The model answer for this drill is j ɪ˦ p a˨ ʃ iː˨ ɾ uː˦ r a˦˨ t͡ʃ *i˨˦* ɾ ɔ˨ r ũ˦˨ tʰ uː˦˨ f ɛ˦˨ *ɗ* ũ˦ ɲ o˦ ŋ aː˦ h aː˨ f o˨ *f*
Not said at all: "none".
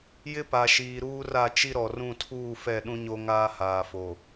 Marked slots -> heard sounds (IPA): i˦, ɗ, none

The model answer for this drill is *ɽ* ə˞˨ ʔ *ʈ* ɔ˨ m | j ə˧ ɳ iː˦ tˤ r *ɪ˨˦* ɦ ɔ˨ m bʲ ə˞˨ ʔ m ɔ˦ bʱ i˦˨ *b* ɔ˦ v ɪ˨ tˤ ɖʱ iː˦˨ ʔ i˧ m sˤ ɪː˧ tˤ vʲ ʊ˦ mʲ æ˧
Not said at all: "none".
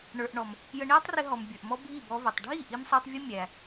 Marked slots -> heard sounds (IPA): ɳ, ɳ, ɪ˧, b

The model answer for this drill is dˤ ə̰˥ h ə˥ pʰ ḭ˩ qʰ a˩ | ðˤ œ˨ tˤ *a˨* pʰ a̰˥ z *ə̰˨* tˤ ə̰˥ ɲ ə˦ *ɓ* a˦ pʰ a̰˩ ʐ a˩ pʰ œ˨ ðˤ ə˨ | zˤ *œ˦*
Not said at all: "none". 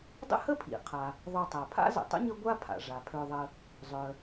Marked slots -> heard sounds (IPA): a˩, ə̰˨, ɡʷ, œ˩

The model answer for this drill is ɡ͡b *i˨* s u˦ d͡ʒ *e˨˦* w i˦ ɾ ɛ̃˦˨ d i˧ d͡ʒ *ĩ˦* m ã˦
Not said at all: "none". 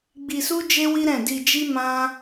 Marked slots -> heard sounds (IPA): i˧, e˦, i˦

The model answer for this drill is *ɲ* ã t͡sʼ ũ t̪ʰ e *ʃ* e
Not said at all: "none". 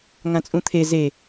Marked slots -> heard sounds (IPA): ŋ, z

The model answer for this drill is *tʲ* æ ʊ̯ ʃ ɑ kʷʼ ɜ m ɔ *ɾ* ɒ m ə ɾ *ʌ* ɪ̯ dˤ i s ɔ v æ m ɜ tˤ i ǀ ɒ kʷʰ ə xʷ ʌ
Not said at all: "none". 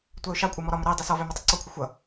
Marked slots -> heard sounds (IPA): tʷ, ɾ, ʌ

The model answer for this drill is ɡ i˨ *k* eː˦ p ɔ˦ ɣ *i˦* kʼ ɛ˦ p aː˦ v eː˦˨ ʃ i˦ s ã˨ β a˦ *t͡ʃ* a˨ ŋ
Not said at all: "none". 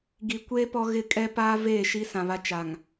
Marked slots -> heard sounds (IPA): kʷ, ɪ˦, t͡ʃ

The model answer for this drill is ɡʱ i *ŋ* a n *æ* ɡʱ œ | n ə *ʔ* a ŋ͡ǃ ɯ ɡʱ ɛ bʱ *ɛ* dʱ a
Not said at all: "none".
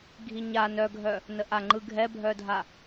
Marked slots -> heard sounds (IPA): ɲ, œ, ʔ, œ

